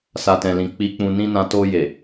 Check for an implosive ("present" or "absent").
absent